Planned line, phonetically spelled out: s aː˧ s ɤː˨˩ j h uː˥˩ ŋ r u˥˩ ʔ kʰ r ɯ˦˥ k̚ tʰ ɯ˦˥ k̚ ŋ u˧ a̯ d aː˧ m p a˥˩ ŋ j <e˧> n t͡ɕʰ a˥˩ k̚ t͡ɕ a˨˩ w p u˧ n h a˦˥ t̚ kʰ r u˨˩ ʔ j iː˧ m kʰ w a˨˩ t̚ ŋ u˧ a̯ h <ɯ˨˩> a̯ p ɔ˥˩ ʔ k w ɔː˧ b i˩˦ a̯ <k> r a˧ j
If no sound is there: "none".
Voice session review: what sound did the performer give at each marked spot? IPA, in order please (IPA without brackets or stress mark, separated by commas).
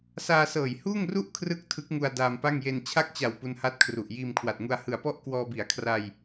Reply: e˧, ɯ˨˩, kʰ